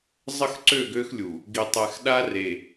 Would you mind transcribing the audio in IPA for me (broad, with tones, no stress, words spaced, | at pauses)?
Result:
zˤə˦xǀø˦˨ɡø˦xlʲu˨ | ɡi˨tˤɛ˨x ɗa˦re˨